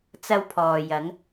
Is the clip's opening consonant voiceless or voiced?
voiceless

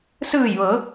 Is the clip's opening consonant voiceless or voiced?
voiceless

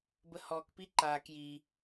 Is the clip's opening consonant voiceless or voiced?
voiced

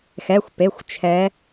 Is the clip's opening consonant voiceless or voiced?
voiceless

